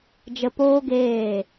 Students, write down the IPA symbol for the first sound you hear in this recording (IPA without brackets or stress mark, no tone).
d͡ʒ